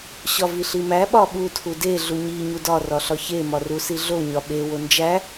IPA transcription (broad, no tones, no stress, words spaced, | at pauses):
ɕɒviɬimæ ɓɒɓu tʰude ɮuɲi ɲudɒ rɒɬɒçe mɒrusiɮo ɲɒɓe wond͡ʒæ